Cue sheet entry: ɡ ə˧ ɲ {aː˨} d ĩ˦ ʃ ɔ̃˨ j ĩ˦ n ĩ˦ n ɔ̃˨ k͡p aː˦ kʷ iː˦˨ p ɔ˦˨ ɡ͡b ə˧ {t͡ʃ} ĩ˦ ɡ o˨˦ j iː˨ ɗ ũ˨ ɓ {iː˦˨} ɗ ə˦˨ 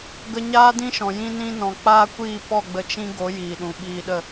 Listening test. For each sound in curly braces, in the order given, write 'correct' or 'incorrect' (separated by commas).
incorrect, correct, incorrect